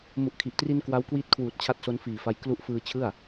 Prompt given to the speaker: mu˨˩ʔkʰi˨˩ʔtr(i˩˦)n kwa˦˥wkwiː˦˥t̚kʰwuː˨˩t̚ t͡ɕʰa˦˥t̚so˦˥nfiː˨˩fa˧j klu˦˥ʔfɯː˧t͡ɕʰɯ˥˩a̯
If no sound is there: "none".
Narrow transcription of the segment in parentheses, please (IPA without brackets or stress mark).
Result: i˧